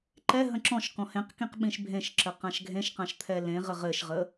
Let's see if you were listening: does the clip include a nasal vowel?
yes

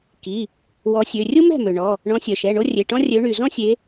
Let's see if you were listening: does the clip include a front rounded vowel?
yes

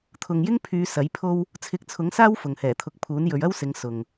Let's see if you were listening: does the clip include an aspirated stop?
yes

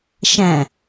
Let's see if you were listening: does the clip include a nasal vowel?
yes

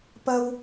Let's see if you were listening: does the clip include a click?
no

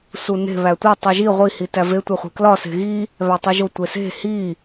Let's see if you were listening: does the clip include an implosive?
no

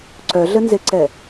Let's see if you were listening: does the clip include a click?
yes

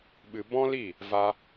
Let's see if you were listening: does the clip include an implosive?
yes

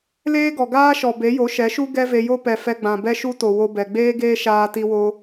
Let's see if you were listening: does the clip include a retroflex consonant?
no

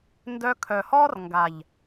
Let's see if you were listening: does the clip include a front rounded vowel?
yes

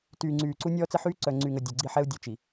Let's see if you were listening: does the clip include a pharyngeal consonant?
yes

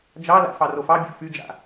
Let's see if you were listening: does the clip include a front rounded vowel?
yes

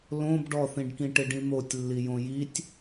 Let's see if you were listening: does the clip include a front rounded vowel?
no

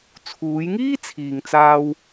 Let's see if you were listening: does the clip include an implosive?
no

